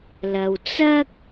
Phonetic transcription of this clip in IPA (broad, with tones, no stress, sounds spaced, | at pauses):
l ɐ˨ w t͡s ɐ˥ k̚